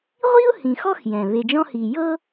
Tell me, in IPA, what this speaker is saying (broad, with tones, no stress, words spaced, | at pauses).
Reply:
ʁʷi˥ʊ̯ hĩ˨xɔ˥x jɛ̃˩βe˨d͡ʒɔ̃˦hi˨ jɤ˥